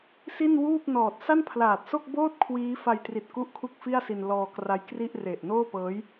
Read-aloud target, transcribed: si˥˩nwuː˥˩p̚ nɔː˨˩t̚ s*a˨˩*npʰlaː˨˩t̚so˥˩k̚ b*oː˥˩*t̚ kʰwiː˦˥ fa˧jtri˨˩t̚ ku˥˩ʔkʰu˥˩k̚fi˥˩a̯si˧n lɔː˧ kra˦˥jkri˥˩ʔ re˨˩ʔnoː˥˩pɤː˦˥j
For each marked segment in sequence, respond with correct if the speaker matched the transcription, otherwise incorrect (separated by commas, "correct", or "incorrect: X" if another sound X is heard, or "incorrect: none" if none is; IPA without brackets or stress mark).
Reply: incorrect: a˥˩, correct